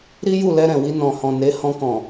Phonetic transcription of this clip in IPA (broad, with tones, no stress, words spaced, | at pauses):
ɾi˦ju˦˨lɛ˧ɾɛ̃˨ wi˧nɔ̃˨hɔ̃˨ ne˨˦ hɔ̃˧kɔ̃˨